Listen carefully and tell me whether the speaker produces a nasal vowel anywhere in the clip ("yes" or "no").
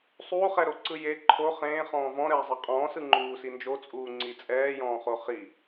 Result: yes